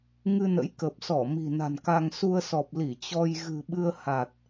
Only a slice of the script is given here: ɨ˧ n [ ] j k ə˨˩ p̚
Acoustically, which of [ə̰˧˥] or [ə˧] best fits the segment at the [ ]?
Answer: ə̰˧˥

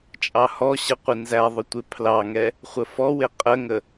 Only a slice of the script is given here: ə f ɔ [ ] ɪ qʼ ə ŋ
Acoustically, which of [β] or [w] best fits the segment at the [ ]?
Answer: w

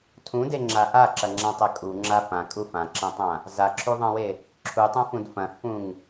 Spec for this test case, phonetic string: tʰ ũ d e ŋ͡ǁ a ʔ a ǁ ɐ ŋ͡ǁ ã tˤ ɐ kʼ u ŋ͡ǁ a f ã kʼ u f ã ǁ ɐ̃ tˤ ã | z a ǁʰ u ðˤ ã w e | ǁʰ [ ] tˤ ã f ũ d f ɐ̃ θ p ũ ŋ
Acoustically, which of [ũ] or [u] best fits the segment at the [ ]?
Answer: u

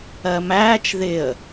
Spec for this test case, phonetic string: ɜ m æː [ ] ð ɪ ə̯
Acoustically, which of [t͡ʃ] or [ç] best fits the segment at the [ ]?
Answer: t͡ʃ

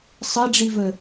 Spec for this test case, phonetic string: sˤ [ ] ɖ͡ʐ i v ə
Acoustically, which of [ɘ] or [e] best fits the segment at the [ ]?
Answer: ɘ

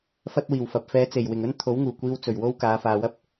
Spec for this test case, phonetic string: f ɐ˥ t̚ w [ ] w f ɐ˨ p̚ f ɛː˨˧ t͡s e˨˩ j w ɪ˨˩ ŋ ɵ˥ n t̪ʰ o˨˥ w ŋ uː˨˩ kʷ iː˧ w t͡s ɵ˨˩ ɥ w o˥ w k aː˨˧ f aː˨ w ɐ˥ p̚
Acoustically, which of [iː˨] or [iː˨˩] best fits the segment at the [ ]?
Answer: iː˨˩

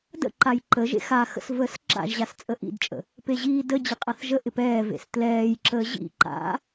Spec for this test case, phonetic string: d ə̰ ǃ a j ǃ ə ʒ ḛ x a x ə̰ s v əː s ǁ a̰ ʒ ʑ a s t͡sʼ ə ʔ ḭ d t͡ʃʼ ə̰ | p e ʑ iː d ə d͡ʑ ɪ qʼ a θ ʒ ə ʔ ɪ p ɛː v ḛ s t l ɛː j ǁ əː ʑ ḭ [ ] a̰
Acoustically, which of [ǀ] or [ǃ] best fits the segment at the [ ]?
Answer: ǃ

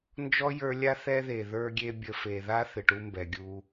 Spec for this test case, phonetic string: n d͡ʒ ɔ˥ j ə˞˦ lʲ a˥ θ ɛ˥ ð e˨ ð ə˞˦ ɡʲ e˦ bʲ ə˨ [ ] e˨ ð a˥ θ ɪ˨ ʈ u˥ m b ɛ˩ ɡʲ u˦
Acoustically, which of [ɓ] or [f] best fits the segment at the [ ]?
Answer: f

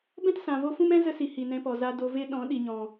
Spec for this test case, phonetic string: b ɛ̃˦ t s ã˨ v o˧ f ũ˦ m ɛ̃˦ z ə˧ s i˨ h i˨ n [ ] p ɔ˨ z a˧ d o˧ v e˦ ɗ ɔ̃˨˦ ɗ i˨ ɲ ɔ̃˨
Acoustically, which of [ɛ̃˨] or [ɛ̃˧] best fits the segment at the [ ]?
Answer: ɛ̃˧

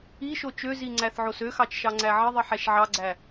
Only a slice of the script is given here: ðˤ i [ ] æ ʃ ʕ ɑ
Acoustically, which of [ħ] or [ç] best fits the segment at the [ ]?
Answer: ħ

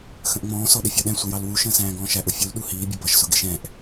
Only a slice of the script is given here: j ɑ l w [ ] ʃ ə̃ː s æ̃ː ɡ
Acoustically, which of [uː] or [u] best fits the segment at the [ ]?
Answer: u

